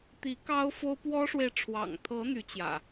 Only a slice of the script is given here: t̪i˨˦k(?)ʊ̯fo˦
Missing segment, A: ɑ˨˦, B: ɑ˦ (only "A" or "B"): B